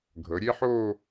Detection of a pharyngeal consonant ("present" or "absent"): present